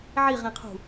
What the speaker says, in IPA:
ʕ i ʁ ĩ qʰ ṳ

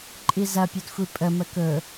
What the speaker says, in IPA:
ǃʼ i z ɐ pʲ ɵ d xʷ i pʼ ə m ə k ɵ

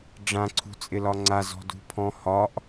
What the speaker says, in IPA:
ɖ͡ʐ ã ǀʰ ṳ t͡sʼ ɪ l ɒ ŋ͡ǀ a z ɔ̤ d ṳ pʰ ɔ̃ h ɒ ʔ

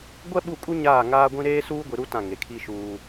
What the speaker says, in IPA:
ɡʷ ɛ˦ ɓ u˦˨ kʼ u˦ ɲ aː˦˨ ŋ aː˦ ɡʷ ĩ˦ ɾ eː˦ s uː˦ ɡʷ i˨ ɾ u˦ t ã˦˨ ŋ e˨ kʰ i˦ ʃ uː˦

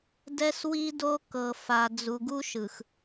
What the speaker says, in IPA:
d ɛ˦ s w i˦ d o˦ k ɤ˨ f a˨ d͡z u˨ ɡ u˦ ʃ ɯ˨ x

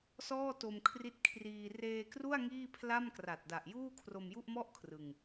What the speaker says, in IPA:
s ɔː˥˩ t o˧ m kʰ r i˦˥ t̚ kʰ r iː˧ r eː˧ k r u˥˩ a̯ ŋ iː˥˩ pʰ l a˥˩ m k r a˨˩ t̚ d a˨˩ ʔ j uː˥˩ kʰ r o˧ m j u˥˩ ʔ m ɔ˥˩ ʔ kʰ r ɯ˧ ŋ

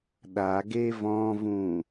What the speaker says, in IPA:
ɗ a ɡ e v ɔ̃ v ũ

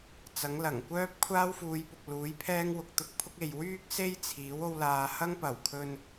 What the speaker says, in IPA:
t͡s ɐ˨˥ ŋ l ɐ˨˩ ŋ kʷ œː˥ p̚ kʷʰ aː˥ w f uː˨˧ j p ʊ˨ k̚ l uː˨˥ j pʰ ɛː˥ ŋ w ʊ˨ k̚ t̪ ʊ˧ k̚ pʰ ʊ˥ k̚ e˨ j w yː˥ k̚ s e˥ j t͡sʰ iː˨˥ w o˥ w l aː˧ h ɐ˥ ŋ p ɐ˨˩ w kʰ ɵ˧ n

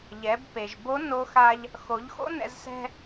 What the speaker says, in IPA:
ʎ ɛ˩˧ b p e˩ ʒ b o˧˥ n o˧ x a˧ ʎ | x o˩˧ ʎ x o̰˥ n ɛ̰˧ z s ɛ̤˧

